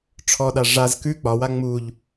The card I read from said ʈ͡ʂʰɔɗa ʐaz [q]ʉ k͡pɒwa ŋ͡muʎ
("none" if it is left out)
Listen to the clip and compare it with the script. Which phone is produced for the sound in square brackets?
k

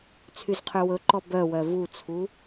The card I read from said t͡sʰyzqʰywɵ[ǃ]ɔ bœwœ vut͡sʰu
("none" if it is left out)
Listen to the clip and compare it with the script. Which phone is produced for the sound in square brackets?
ǃ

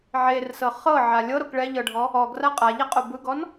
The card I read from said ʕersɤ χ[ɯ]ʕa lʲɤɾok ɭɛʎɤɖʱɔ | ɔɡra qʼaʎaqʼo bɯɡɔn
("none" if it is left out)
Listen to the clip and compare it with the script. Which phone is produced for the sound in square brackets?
ɤ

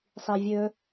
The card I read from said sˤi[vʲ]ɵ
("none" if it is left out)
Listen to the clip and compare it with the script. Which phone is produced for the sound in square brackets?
vʲ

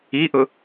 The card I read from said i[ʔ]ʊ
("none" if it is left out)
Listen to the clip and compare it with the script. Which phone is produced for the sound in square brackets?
ʔ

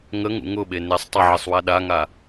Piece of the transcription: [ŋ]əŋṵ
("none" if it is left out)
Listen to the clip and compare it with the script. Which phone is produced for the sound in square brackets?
ŋ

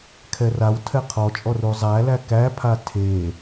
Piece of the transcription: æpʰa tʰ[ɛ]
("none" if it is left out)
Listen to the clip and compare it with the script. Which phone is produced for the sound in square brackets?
e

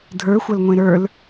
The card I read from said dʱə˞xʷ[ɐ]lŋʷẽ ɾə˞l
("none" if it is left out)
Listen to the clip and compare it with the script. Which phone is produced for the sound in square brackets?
ɐ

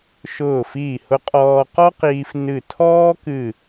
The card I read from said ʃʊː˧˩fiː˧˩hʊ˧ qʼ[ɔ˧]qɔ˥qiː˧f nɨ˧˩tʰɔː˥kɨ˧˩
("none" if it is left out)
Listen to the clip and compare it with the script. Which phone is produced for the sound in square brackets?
ɔː˧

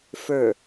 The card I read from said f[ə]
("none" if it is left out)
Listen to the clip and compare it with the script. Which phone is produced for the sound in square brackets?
ə˞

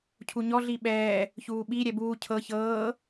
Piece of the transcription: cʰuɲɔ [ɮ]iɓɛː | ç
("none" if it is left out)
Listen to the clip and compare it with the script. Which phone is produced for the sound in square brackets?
ɮ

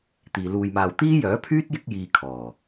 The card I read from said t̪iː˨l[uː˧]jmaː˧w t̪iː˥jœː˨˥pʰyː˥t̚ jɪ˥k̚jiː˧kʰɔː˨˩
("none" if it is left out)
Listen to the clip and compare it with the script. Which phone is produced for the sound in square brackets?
uː˧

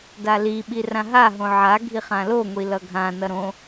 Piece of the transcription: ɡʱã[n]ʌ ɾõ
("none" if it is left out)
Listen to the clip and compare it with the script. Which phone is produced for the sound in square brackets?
n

